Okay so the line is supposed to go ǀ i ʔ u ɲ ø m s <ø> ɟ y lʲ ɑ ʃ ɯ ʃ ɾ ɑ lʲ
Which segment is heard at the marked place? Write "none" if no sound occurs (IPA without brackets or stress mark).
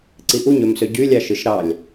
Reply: ø